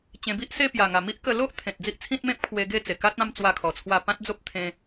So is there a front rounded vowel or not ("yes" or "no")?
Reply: no